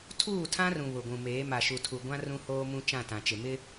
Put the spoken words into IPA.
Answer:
tʰ uː˦˨ tʰ ã˦ r ũ˨ β ʊ˨ ɡʷ ũ˨ m eː˨˦ m a˨ ʃ u˨ tʰ u˨ ɡʷ ã˦ r ũ˦ h oː˦ m ũ˦ t͡ʃ ã˦˨ t ã˨ t͡ʃ ɪ˨ m ɪ˦

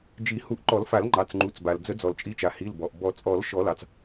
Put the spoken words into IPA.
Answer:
d͡ʒ i˨˩˦ h u˨˩˦ ʔ ǃ ɔ˨˩˦ l f a˨˩˦ l ŋ͡ǃ ɑ˩˧˩ t͡s ŋ͡ǃ u˩˧˩ t͡s b a˩ l d͡z ə˨˩˦ d͡z ɔ˩ l t͡ʃʼ i˩˧˩ t͡ʃ a˩ h i˩˧˩ l b ɔ˩ ʔ b ɔ˨˩˦ t͡sʼ ɔ˨˩˦ l ʃ ɔ˨˩˦ l ɑ˩ t͡s

